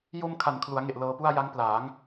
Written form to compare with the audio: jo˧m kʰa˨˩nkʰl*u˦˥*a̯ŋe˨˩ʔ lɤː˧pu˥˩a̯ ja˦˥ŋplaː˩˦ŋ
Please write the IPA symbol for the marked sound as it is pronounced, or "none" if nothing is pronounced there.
u˩˦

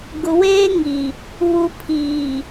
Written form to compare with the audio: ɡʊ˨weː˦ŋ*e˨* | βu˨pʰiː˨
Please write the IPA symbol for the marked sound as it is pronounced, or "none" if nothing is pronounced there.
i˨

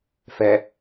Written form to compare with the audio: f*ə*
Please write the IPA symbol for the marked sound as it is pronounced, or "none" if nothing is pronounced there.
ɛ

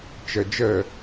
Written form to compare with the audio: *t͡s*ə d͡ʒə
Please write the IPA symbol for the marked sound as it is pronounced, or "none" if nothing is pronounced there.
t͡ʃ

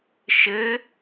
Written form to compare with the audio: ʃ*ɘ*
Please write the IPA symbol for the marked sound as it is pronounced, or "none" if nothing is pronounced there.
ɘ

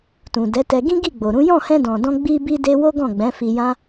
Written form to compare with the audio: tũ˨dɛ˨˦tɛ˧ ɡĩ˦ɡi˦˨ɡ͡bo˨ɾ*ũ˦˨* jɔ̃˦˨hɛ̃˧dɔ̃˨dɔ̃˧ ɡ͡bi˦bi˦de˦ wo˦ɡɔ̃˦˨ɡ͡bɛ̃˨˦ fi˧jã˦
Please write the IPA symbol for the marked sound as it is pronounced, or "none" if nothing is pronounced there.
ũ˨˦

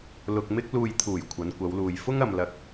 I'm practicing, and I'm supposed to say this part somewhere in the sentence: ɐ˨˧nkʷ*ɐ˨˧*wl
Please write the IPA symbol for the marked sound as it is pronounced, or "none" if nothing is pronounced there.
ɐ˨˧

